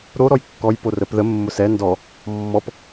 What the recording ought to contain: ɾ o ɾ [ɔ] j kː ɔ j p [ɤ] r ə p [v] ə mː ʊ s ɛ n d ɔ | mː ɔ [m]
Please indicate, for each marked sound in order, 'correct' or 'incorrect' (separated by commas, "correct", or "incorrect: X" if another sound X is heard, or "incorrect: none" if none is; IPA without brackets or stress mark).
correct, incorrect: o, incorrect: ð, incorrect: p